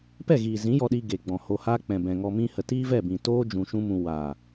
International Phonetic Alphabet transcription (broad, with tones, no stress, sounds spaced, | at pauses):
p ɛ˦˨ ɣ iː˨ z ĩ˨˦ j ɔ˧ ɗ iː˧ ɡ e˨ ɡ͡b ɔ̃˨ h o˧ h aː˦ k͡p ɛ̃˨ b ɛ̃˨ ŋ ɔ˧ m ĩ˧ h ə˨ t iː˦ v ɛ˦˨ b ĩ˨ t oː˦ d͡ʒ ũ˧ ʃ ũ˦ m ũ˧ w aː˨